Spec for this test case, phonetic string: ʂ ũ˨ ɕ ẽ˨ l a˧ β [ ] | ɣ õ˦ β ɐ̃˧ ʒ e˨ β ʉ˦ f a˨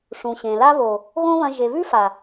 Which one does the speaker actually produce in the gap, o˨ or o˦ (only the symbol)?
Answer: o˨